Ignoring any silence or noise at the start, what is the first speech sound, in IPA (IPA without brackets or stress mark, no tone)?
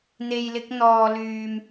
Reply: n̪